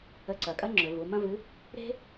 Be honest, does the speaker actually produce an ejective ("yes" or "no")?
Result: yes